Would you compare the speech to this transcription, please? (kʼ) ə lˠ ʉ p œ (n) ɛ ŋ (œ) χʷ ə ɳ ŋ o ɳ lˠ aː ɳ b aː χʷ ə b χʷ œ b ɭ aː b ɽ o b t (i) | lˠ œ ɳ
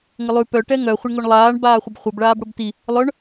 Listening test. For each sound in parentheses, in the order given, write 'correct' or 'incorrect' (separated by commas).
incorrect, incorrect, correct, correct